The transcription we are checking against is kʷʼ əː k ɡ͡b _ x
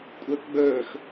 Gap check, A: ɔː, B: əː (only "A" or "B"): B